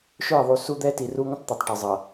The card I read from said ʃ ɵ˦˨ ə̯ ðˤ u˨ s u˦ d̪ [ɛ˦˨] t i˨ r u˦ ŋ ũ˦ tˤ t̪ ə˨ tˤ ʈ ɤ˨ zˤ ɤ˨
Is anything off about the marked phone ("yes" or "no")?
yes